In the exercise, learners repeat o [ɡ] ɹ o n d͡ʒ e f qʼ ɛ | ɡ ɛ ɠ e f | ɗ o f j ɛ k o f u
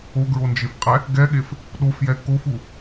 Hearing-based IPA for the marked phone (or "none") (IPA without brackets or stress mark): ɡ